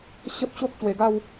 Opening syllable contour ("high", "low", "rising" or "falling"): high